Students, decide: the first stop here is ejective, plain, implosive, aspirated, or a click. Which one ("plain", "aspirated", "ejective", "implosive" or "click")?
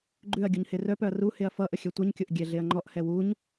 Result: click